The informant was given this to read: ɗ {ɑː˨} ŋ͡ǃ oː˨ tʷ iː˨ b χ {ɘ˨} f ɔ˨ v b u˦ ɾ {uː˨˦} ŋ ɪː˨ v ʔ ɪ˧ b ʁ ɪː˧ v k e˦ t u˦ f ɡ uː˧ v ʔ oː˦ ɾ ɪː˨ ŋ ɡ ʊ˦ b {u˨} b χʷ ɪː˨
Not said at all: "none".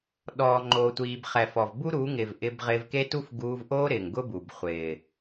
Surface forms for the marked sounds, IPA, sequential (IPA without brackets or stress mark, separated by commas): ɔː˨, ɛ˨, uː˨˦, u˨